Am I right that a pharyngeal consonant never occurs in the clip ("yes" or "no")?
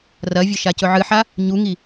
no